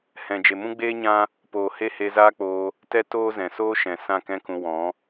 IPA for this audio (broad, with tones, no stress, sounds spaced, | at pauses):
h ɛ̃˨ d͡ʒ e˨ m ũ˦ ɡ͡b eː˦ ɲ ã˦ | p oː˨ h e˦ h e˧ z aː˦ k͡p oː˧ | t ɛ˦ t oː˦ z ɛ̃˨ s oː˦ ʃ ɛ̃˨ s ã˦˨ k ɛ̃˦ k ũ˧ w ɔ̃˨˦